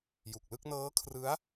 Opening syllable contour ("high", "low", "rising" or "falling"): low